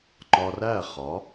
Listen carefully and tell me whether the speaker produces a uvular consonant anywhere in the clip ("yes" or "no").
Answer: yes